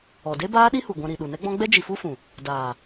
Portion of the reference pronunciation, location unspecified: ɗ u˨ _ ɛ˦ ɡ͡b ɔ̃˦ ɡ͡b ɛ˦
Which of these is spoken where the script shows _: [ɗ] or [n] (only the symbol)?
n